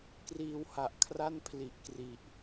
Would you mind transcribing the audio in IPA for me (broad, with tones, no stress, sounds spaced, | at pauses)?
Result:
k r iː˧ w h a˨˩ ʔ kʰ r a˥˩ n pʰ l i˨˩ ʔ k r i˨˩ ʔ